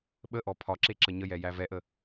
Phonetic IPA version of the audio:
ɓ ə ʔ ɔ pʰ ɒ ǁ e ǁ ə ɲ ə j ɛ j æ v ɛ ʔ ə

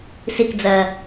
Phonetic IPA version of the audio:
s i k d͡z ɜ

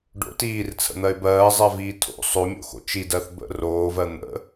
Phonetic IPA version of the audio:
ɖ o̰ t iː r t͡sʰ ə̰ n̪ ɜ ɪ̯ b ɜː zˤ ɜ v iː tʰ o̰ sˤ o mʲ o̰ x o̰ t͡ʃ i d ɜ θ b ə̰ r oː v ɜ n̪ ə̰

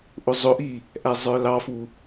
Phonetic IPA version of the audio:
ʔ ʊ zˤ ʊ ʔ i | ʔ æ zˤ ə˞ l ɑ f u

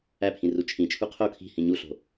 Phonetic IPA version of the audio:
æ pʰ ĩ r u t͡ʃʰ ĩ t͡ʃʰ u qʰ o kʰ i̤ h ĩ ɲ u ɬ o̤

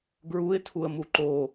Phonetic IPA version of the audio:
ɡ ɹ u ɪ̯ tʰ u ə̯ m u ǃ o

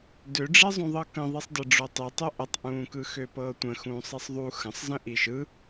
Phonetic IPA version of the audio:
d ø ɖ͡ʐ e zˤ ũ ðˤ ɤ k ə̃ ðˤ i sˤ d ə ɖ͡ʐ o tˤ i tˤ ø ʔ ə tˤ ʔ ũː k ɯ x ø p ɤː tʷ ə̃ x ũː sˤ i sˤ ðˤ u x ə̃ sˤ z ə̃ ʔ i ʃ ɯ

